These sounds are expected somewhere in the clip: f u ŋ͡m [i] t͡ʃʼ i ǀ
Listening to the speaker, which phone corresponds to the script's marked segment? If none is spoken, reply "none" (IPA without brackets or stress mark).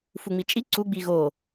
i